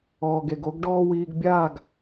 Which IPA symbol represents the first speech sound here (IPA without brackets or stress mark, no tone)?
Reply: ɔː